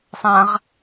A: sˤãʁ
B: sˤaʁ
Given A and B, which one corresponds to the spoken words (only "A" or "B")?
A